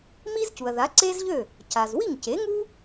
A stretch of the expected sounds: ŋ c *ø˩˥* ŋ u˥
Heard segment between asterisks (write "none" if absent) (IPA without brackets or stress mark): e˩˥